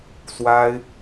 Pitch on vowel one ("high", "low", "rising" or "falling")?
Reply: high